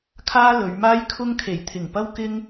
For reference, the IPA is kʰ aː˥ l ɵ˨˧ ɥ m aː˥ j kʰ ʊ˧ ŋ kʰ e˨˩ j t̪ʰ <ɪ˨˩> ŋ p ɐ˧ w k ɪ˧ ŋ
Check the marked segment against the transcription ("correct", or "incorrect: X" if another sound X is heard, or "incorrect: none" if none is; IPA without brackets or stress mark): correct